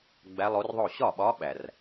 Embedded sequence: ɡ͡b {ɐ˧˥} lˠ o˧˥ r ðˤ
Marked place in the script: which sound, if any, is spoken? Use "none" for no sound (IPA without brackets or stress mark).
æ˧˥